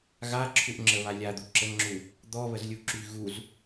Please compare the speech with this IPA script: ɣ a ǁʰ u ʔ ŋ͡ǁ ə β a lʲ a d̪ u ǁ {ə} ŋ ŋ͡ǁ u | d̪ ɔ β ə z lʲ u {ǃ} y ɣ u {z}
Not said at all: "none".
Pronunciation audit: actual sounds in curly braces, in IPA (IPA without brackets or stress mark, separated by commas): ə, ǁ, z